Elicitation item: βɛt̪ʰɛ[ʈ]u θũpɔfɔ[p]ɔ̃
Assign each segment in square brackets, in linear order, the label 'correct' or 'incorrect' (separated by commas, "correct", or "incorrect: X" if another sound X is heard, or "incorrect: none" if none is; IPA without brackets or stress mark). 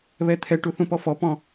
correct, correct